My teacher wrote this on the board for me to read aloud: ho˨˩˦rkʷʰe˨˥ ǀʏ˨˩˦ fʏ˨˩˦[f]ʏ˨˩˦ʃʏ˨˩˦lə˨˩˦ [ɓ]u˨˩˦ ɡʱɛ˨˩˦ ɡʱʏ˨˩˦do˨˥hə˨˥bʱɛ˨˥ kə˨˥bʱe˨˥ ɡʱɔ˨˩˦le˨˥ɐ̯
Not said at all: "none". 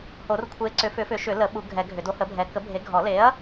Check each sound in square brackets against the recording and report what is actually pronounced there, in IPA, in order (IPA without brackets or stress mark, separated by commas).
f, ɓ